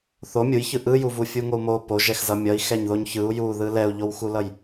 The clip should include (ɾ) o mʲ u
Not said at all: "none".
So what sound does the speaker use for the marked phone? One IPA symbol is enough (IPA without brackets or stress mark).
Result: θ